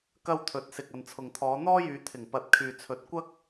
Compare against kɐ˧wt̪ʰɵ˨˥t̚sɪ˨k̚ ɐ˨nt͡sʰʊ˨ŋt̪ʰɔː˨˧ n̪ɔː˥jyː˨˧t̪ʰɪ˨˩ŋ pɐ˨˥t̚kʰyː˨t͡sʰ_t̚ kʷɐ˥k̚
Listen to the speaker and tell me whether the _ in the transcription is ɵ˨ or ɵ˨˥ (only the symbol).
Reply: ɵ˨˥